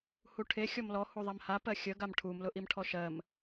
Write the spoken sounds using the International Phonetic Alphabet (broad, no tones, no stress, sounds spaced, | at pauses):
h u ʈʰ e xʲ ɔ m l ɔ h u ðˤ æ m h a p ɜ xʲ ə ɡ a m ʈʰ u m l ʊ ʔ i m ʈʰ ɔ ʃ ɜ m